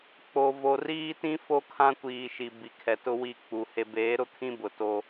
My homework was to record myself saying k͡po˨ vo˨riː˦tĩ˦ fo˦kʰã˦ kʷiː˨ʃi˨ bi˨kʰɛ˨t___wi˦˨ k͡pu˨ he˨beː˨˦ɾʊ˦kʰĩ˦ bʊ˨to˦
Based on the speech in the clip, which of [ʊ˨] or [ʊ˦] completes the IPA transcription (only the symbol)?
ʊ˦